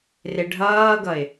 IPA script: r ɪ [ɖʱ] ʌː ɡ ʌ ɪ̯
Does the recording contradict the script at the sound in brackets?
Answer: no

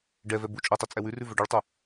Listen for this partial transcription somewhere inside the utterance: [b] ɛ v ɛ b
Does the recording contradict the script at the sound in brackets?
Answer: yes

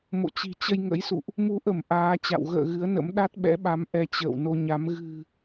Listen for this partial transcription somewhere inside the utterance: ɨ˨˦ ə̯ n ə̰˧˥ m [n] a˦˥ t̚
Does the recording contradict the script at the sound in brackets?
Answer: yes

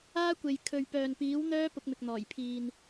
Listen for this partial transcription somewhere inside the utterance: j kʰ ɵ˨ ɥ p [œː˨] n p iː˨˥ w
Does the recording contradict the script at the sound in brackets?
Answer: no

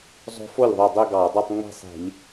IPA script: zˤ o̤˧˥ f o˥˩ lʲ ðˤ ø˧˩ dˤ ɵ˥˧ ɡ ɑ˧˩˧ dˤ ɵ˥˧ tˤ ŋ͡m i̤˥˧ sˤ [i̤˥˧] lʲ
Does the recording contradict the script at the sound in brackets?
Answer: yes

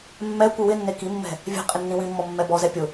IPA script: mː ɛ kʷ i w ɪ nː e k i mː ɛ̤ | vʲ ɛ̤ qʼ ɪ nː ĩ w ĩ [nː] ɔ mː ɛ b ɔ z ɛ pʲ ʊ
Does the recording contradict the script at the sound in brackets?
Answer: yes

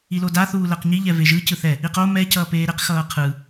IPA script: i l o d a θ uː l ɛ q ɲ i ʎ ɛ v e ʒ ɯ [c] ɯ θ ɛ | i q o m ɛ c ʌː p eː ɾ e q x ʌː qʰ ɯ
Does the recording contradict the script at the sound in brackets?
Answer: no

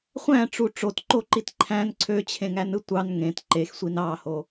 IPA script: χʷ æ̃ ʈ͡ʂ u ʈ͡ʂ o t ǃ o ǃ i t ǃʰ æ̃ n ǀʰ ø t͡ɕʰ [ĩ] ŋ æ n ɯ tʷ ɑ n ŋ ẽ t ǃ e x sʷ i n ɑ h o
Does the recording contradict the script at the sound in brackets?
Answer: yes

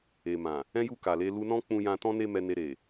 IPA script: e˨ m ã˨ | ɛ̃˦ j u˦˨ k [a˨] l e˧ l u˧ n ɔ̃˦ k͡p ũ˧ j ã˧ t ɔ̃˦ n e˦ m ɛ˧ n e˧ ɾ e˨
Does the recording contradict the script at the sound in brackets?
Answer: no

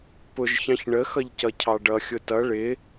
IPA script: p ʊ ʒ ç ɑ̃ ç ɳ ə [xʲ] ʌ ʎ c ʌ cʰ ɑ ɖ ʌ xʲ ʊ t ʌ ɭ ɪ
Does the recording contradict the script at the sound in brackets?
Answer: yes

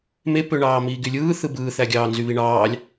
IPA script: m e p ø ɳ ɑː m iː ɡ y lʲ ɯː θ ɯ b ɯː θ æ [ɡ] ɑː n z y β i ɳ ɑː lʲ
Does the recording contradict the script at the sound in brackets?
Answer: yes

